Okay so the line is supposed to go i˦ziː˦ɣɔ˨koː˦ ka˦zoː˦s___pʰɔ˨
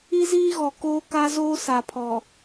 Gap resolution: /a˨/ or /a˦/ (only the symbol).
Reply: a˨